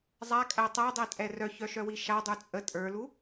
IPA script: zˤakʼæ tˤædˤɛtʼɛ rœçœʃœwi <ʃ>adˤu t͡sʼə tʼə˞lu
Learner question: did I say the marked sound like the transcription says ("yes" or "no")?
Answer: yes